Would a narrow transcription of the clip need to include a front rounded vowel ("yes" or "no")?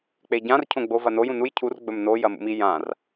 no